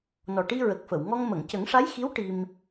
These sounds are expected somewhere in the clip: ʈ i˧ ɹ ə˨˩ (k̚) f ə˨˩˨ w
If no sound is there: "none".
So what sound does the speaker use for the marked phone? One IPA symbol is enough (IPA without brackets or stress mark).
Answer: k̚